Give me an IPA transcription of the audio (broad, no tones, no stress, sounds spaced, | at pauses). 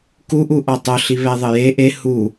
k u ʔ u ʔ ɔ tˤ o ɬ i β ɛ ðˤ ɘ j e ʔ e h u